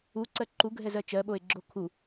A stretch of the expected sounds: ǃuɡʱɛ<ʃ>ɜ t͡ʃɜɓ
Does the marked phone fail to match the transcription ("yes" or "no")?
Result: yes